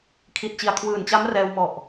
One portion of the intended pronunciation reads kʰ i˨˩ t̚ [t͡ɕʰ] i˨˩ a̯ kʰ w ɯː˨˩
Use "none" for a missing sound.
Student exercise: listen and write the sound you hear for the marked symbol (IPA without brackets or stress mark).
t͡ɕ